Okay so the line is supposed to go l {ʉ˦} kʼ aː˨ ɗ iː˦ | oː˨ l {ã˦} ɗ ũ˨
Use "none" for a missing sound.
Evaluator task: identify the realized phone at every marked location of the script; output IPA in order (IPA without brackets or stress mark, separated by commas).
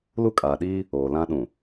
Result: u˦, ã˦